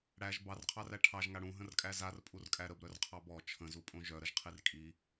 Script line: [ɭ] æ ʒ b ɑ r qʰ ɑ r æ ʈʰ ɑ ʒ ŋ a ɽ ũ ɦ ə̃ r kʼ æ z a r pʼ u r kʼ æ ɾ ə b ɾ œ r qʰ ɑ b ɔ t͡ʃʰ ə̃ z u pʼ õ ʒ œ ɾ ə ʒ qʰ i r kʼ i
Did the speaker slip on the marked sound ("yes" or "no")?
yes